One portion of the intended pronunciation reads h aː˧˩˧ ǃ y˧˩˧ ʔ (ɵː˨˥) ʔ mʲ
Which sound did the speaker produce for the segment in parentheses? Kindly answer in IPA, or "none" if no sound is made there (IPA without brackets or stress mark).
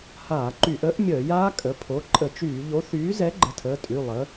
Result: əː˨˥